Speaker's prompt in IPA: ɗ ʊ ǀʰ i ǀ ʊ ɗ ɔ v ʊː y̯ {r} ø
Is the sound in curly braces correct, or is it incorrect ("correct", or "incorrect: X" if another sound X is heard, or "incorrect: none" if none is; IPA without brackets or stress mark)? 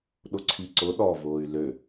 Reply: incorrect: l